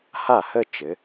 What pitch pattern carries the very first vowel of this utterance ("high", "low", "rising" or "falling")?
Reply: falling